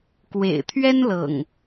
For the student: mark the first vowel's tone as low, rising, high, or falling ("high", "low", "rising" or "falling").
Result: low